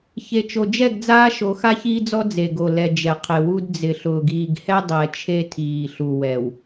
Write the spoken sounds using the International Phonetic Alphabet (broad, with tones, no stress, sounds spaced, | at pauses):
ç e˨ t͡ʃ o˨ d͡ʒ ɛ˦˨ ɡ d͡z aː˦ ʃ o˨˦ x a˦ ç iː˦ d͡z ɔ˦ d͡z e˨ ɡ o˨ l ɛ˨ d͡ʒ ɛ˨ qʰ ɪ˨ w u˦ d d͡z ɪ˨ ɬ ʊː˨ ɡ iː˨ ɡ h ɛ˦ dˤ ɛ˨ t͡ʃʰ e˦ tʰ iː˨ ɬ u˨ w ɛ˨ w